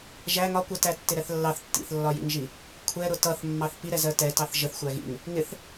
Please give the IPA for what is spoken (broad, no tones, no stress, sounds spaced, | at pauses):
ʒ æ ŋ ɒ kʷ ɛ t æ tː ɪ ɾ ɛ θ lː ɑ θ tː ḭ θ lː ɒ j ḭ ŋ ʒ i | kʷʰ ɛ ɾ ʊ t ʌ θ mː ɑ θ p i ɾ ɛ z ɜ t ɛ t ɑ θ ʒ ə θ xʷ æ ɣ ḭ ŋ | ŋ ɪ θ